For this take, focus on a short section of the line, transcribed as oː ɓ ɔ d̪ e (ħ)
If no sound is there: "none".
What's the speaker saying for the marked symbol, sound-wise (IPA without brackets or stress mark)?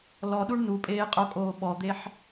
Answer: ħ